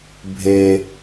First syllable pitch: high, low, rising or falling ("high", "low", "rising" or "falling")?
low